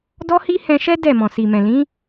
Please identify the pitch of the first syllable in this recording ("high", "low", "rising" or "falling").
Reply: high